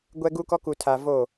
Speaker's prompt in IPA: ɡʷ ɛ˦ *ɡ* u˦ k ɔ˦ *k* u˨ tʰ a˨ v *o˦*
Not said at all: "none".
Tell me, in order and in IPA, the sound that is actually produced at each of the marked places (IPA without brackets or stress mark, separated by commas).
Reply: ɡ, k, o˦˨